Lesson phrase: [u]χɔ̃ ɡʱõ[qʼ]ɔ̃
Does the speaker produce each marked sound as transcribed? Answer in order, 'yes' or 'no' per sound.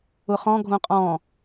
no, yes

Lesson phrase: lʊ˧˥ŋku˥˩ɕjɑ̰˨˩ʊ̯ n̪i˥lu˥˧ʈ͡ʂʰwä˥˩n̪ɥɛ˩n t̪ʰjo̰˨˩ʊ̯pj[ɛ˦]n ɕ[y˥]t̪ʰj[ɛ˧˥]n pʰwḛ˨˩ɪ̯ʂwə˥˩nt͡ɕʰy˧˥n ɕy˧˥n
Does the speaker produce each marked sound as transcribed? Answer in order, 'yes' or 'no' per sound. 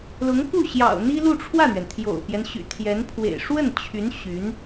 yes, no, yes

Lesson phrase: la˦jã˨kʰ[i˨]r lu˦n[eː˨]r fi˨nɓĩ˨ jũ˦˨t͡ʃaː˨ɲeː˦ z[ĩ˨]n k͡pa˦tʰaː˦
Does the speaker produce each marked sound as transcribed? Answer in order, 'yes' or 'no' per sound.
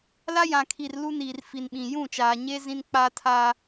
yes, no, no

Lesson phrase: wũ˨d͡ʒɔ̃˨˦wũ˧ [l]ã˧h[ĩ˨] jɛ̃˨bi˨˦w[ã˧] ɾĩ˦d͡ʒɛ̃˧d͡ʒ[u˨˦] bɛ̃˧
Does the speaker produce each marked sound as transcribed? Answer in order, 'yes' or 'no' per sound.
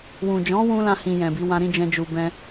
yes, yes, yes, no

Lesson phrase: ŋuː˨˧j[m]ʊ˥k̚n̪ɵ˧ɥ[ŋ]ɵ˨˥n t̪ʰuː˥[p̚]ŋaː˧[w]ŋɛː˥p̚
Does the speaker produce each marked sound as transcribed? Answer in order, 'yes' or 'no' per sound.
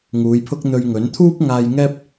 no, yes, yes, no

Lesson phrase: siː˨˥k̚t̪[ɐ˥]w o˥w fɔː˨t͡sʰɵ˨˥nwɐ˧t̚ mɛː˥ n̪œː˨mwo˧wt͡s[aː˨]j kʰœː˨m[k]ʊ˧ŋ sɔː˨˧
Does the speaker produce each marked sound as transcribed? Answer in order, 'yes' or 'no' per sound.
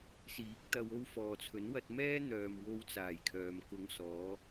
no, no, yes

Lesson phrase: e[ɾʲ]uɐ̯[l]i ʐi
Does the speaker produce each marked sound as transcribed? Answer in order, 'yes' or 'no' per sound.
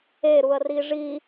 no, no

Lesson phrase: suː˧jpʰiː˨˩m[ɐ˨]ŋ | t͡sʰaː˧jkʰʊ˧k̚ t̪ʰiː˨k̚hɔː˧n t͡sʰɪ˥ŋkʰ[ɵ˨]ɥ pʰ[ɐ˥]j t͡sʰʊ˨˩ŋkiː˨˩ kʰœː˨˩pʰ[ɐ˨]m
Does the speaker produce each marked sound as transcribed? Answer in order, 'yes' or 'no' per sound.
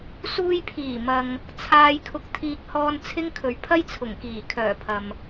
yes, yes, yes, yes

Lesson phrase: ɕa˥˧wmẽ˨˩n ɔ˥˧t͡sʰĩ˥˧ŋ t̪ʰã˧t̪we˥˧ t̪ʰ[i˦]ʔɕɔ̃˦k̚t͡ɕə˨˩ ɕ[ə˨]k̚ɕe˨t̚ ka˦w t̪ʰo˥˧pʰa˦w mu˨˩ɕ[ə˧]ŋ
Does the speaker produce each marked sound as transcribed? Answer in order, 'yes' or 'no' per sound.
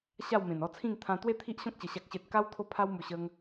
yes, no, yes

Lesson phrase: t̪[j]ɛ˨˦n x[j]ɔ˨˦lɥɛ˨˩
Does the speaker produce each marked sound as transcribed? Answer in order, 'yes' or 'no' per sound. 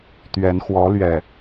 no, no

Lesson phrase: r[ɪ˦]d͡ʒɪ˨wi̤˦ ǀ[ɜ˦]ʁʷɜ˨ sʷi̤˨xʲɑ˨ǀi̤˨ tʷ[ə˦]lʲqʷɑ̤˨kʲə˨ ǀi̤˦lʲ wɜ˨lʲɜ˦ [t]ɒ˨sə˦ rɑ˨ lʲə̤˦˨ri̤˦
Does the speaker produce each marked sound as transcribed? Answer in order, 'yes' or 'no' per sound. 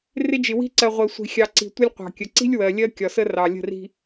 yes, no, no, no

